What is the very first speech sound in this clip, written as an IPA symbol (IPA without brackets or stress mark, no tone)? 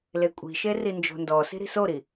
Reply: l